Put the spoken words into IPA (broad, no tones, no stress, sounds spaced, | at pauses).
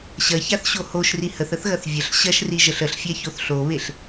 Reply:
ɕ ɐ ç a θ ɕ o h o ʃ r i h ə θ ə θ ɣ ɐ θ vʲ ə ɬ ɕ ɐ ʃ r i ʒ ə ɬ ə ɬ fʲ a ç o θ ɬ o β e ɬ